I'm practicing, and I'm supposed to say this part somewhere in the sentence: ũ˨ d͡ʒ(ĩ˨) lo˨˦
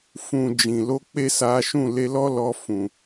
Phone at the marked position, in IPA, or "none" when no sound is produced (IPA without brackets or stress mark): ĩ˨